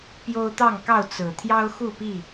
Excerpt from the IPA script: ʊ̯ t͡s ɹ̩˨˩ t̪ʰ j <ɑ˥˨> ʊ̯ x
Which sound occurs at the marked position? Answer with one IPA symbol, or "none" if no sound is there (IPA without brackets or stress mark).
ɑ˦